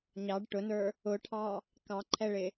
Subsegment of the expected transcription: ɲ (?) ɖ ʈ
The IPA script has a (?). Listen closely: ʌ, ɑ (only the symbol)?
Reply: ɑ